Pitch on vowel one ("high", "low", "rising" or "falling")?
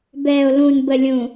low